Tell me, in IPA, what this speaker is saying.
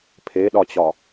pʰ e ɗ ɒ t͡ɕ ɒ

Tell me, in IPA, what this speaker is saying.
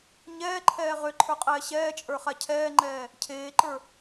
ɲ ɛː ǃʰ ɛː ʁ ø ǃʰ ə˞ qʼ ɛː ɕ ɛː t͡ʃʼ ə˞ χ a cʰ ɛː ŋ͡ǃ ɛː | cʰ eː ǃ ə˞

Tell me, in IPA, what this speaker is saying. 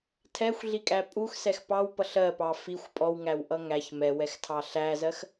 tʰ ɛ xʷ ɮ i kʼ æ pʼ u x s ɛ x p ɑ w p ʌ ɬ ɜ p ɑ f i xʷ pʼ ɔ w ŋ æ w ʔ ʌ ŋ æ ç m ɛ w ɛ x tʰ ɑ ɬ æ z ɜ x

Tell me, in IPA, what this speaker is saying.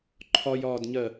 ǃʰ ɒ j ɒː d ɲ ɜ

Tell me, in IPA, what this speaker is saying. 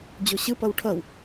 d͡ʑ o ɕ ɯ p ʌ w ʈʰ ʌ w

